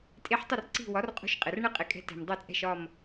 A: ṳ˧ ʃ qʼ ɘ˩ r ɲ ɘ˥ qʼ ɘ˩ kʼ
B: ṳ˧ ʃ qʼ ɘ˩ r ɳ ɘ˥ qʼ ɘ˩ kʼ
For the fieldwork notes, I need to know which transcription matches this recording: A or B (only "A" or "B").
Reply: B